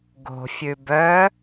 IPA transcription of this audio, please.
ɡ o̤ fʲ ʉ b œ

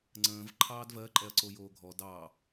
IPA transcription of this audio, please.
ŋ͡ǀ ə̃ː v ǃʰ ɑː d v ɜ ǃʼ ɛ ɐ̯ ǀ o j oː ɡʱ ɔ d ɑː

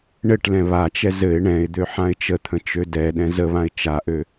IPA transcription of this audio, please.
ɳ ɘ ʈ l ɛ̃ β a t͡ʃ ɛ z ɘ ɪ̯ ɳ ɛ̃ ɪ̯ d̪ ø ħ ã ɪ̯ t͡ʃ ə t̪ʰ ə̃ t͡ʃ ø d ɛ ɗ ɛ̃ z ə β ã ɪ̯ t͡ʃ a ʔ ø

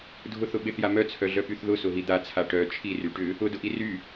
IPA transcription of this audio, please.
dʱ ʊ θ ʊ ɓ ɪ θ j a m œ t͡sʰ œ ɮ œ p y θ ð ʊ s ʊ ɦ i d̪ a t͡sʰ a ʈ œ t͡ʃʰ i r y ʈ ʏ | ʊ d ʊ ʔ i r y

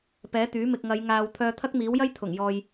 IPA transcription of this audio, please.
p ɛː˨˥ t̪ yː˨˥ m ɪ˨ k̚ ŋ ɐ˨˧ j ŋ aː˨ w t̪ʰ œː˧ t̪ʰ ɐ˥ k̚ m iː˨˥ w j ɐ˥ j t̪ʰ ʊ˨˩ ŋ j ɔː˨ j

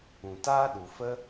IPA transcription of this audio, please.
ũ˨ t aː˦ ɗ u˨ f ə˦

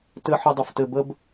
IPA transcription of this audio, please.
t ɘ˥ ħ ɘ˥ dˤ ə˥ f t ɘ˥ b ə˥ b

